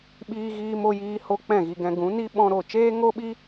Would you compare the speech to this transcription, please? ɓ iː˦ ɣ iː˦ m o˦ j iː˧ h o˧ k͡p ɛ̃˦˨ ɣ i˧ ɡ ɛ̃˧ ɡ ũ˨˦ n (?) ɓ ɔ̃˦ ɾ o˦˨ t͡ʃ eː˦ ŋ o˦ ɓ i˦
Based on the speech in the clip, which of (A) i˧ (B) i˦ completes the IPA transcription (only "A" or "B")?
B